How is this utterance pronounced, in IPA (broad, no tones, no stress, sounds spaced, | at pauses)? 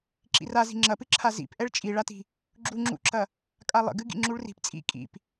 ǁ ḭ r a z i̤ ŋ͡ǁ ɐ p ɨ ǁʰ a z ḭ p ʔ ɛ ɭ t͡ʃʼ i ɭ a t i̤ | ɡ͡ǁ u ŋ͡ǁ ṵ ǁ ɐ | kʼ a lˠ ə̰ ɡ ɨ ɡ ḭ ŋ͡ǁ u ɭ r i̤ p t͡sʼ ḭ kʼ ḭ p